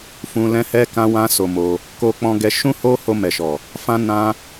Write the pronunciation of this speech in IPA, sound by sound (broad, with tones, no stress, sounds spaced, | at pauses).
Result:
f ũ˧ l ɛ̃˦ h ɛ˦ k ã˦ w ã˦ s o˧ m o˧ | k o˧ k͡p ɔ̃˧ ɡ ɛ˧ ʃ ũ˦ h o˦ h o˧ m ɛ˨ ʃ ɔ˨ | f ã˦ n ã˦